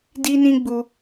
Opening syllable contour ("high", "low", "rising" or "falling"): high